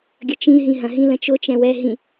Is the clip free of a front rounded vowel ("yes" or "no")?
yes